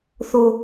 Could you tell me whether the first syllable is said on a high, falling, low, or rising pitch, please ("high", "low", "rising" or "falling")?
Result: high